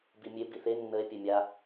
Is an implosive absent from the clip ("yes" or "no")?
yes